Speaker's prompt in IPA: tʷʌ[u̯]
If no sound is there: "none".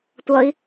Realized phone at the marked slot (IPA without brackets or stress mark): i̯